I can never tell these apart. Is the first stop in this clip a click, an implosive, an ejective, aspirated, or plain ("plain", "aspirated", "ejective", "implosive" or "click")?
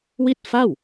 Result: plain